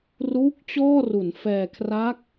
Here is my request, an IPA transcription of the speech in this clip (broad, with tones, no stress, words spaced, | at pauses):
ruː˦˥k̚ t͡ɕɔː˥˩ru˩˦n fɛː˧ kʰra˦˥k̚